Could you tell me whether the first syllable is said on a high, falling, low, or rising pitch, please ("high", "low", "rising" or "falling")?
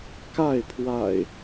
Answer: falling